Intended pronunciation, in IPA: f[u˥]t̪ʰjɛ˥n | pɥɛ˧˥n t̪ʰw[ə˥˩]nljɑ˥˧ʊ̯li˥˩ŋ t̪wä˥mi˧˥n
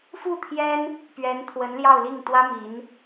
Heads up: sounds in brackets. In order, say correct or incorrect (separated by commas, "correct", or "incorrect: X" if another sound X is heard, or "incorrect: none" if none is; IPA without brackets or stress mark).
incorrect: u˥˩, incorrect: ə˧˥